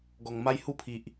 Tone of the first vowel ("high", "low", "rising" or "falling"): low